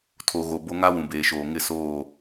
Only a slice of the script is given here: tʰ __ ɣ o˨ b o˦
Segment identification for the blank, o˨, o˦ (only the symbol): o˨